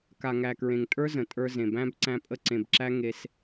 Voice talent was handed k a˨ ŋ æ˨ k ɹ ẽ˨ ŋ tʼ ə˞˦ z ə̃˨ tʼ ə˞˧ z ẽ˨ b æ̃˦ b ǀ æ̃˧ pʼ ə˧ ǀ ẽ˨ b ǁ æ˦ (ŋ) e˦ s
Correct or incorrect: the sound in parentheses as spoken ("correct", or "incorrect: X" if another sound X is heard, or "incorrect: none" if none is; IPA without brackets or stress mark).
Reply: correct